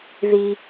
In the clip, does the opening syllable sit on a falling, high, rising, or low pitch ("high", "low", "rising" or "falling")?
high